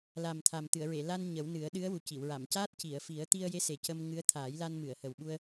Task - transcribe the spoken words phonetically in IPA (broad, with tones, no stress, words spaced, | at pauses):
la˨˩mt̪ʰa˨˩mt̪ɨ˨˩˨ə̯ ɹe˨˩˨la˧n ɲə˨˩˦wnɨ˨˩˦ə̯ ɗɨ˧˥ə̯wu˨˩ci˨˩˨w ɹa˨˩˨mcaː˦˥t̚ ci˨˩˨ə̯fi˨˩˦ə̯ t̪i˧ə̯je˧˥ se˨˩cə˧m ŋɨ˧˥ə̯ t̪ʰaː˨˩˦jla˧nmɨ˨˩˨ə̯ hə˨˩wɓu˧ə̯